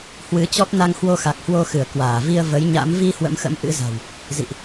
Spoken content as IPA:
h w ɨ˨˦ t͡ɕ ɔ˦˥ p̚ n a˧ ŋ h w o˧ x a˨˩ k̚ h w o˧ x ɨ˧˩ ə̯ k w aː˧˩ v i˧ ə̯ v ə˨˦ j ɲ a̰˧˥ m v i˧ h w ə̰˧˥ m x ə̰˧˥ m ʔ ɨ̰˧˥ z a̤˨˩ w | z ḭ˧˨ ʔ

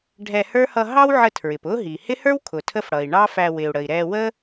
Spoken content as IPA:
ɖʱ ɛ˧ h ə˞˥ h ʌ˧ ɦ ɑ˥ w ʕ ə˧ tʰ ɹ ɪ˩ p ʊ˥ ɦ i˩ h ɪ˥ h ə˞˥ w kʰ ʊ˩ tʰ ə˥ f ɽ ʌ˩ i̯ ɳ ɑ˥ f æ˧ w ɪ˩ u̯ ɽ ə˩ i̯ ɾ ɛ˧ w ə˥

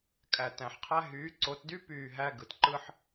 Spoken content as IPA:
kʼ æ˨ t æ̃˨ ħ qʰ æ˦ ɦ yː˨˦ ǀ o˨˦ t d y˦ p yː˦˨ ɦ æ˦ ɡ ɯ˨ t ǃ ɯ˦ ħ

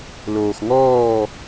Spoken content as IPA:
l oː˧ x ŋ ɔː˥˧

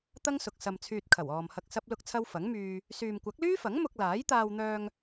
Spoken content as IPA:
t̪ ɐ˥ ŋ s ʊ˨ k̚ s ɐ˧ m t͡sʰ yː˧ t̚ kʰ ɐ˨˩ w ɔː˨ m h ɐ˧ k̚ s ɐ˥ p̚ l ʊ˥ k̚ t͡sʰ ɐ˥ w f ɐ˨˥ ŋ m yː˧ | s yː˨ m kʷ ɐ˨˥ k̚ l yː˥ f ɐ˨˥ ŋ m ʊ˧ k̚ l aː˨˥ j t̪ aː˧ w n̪ œː˧ ŋ

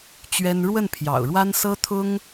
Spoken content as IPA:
t͡ɕ ɥ ɛ˥ n ɻ w ə˥˩ n pʰ j ɑ̰˨˩ ʊ̯ ɻ w a˥ n s ɤ˥ t̪ʰ ʊ˥ ŋ

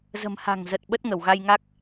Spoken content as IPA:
z ə̤˨˩ m h a̤˨˩ ŋ z ə˨˩ t̚ ɓ ə˦˥ t̚ ŋ ə˧˩ w ɣ a˧ j ŋ a˦˥ k̚

